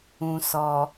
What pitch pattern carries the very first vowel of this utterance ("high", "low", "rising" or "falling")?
low